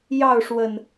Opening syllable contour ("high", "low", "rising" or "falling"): falling